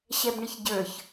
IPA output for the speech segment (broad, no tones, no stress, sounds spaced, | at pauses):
ɕ ɛ b ɳ ɪ ç ɟ ə˞ ç